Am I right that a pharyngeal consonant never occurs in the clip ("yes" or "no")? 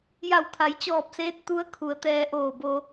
yes